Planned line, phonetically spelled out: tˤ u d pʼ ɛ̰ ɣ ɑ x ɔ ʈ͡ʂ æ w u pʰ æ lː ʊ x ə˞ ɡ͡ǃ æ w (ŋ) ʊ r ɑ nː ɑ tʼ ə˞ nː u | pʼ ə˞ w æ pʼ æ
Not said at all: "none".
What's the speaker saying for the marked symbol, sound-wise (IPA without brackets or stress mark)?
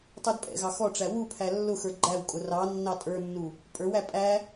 kʼ